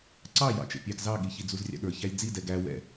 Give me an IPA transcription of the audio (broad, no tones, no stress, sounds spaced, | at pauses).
ǀ ɑ j ɑ̰ t͡ʃ ɛ̰ pʲ ɑ ɡ z ɑ ɠ i ç i d͡z u z rʲ ɑ̰ ɠ ə˞ ç æ lʲ d͡z i d ɛ ɡ æ w ɛ̰